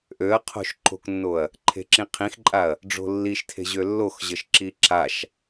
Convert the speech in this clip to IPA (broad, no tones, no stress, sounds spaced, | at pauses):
ʔ ø ɐ̯ qʰ o̤ ʃ ǃ o̤ k nː o ɐ̯ | ǃʰ e̤ ǁ ĩ qʰ ĩ x ǃʼ a ɐ̯ | ɖ͡ʐ o̤ lː i ʃ tʰ e̤ ʑ ø lː o x ʑ ə ʃ ǁ i ǁ a ʃ